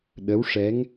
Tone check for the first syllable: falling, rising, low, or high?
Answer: rising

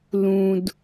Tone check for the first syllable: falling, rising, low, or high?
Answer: low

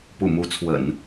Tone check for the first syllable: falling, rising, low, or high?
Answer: low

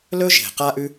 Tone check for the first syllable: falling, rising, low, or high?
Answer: high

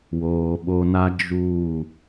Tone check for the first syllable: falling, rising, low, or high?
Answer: low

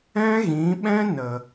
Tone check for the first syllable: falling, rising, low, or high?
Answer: high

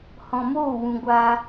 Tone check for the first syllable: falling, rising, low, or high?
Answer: low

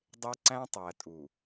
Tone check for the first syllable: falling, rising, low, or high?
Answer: high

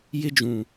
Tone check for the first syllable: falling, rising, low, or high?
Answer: high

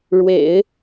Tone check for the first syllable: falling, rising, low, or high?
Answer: low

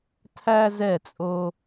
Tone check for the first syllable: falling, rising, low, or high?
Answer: high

